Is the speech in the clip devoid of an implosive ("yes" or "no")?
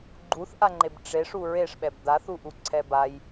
no